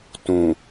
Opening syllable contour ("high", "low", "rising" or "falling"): low